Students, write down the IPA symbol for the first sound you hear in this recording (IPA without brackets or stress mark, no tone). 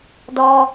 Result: d